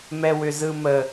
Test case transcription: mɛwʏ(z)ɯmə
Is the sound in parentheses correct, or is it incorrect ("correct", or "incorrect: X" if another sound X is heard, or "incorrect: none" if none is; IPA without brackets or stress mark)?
correct